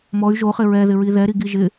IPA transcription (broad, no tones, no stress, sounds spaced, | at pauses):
m ɔ y̯ ʒ o χ ɪ ɹ ɛ ð ɪ ɹ i ð ɛ ɾ i ɡ i ʒ ɪ